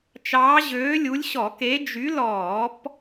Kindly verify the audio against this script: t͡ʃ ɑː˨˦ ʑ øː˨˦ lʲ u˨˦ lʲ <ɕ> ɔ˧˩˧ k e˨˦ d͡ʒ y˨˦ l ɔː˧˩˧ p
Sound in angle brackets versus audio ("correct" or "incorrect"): correct